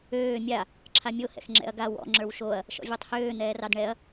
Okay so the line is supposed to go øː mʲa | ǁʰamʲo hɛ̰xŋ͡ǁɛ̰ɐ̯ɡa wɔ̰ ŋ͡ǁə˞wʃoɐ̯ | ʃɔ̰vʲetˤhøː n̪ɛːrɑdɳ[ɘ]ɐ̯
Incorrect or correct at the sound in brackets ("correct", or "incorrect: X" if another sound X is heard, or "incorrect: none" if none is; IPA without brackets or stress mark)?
incorrect: ɛ